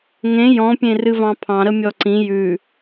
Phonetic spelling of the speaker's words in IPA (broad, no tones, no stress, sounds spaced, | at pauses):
ŋ ẽ j ɔ̃ pʲ ẽ r ɨ v ɑ̃ pʰ ɑ̃ ɾ ə mʲ ɔ ǀ ĩ j ʉ